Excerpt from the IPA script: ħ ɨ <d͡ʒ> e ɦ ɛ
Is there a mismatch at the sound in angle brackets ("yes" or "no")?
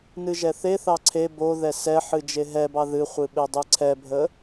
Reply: no